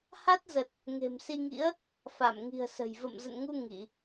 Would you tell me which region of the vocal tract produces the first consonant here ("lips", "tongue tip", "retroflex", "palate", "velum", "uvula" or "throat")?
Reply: throat